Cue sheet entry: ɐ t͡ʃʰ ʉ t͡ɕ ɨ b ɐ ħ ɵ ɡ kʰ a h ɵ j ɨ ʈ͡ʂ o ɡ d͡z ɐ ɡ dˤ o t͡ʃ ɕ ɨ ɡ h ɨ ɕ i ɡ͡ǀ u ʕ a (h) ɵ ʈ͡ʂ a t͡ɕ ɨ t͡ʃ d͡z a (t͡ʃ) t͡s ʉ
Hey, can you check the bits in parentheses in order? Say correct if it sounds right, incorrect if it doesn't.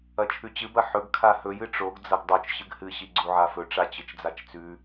incorrect, correct

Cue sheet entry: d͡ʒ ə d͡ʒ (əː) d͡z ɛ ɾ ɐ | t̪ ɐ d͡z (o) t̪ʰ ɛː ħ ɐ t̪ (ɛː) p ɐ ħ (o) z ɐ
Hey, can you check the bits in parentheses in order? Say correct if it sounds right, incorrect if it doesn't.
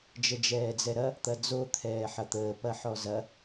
incorrect, correct, incorrect, incorrect

